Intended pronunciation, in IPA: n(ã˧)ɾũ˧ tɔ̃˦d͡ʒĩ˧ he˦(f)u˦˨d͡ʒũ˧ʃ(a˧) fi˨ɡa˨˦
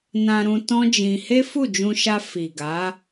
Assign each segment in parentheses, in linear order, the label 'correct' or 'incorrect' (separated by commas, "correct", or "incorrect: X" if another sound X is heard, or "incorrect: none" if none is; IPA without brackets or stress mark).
correct, correct, correct